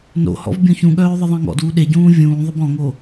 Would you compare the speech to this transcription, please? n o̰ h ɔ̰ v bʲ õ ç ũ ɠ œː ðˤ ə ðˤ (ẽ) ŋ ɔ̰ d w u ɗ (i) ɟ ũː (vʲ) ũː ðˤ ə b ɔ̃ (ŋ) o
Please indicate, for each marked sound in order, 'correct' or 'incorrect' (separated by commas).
incorrect, incorrect, correct, correct